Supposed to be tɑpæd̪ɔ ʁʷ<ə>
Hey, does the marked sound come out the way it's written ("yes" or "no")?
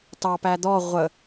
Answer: yes